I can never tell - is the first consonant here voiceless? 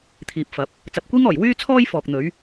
yes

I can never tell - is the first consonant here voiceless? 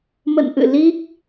no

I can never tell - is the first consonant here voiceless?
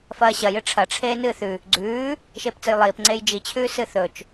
yes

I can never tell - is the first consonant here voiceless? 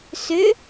yes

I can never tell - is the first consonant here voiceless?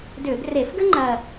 no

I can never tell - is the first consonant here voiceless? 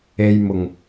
no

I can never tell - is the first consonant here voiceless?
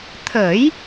yes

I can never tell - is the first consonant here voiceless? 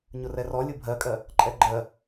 no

